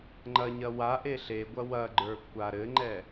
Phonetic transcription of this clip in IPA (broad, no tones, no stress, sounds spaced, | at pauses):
ŋ͡ǃ ɐ ɲ ɐ w a ʔ e ɬ e ɡʷ ɐ w ɐ ɡ͡ǃ ə˞ kʷʰ a ɾ ɘ ŋ͡ǃ ɛ